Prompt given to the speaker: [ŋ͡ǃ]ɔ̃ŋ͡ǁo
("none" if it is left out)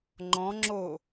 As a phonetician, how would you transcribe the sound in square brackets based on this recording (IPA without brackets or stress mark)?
ŋ͡ǃ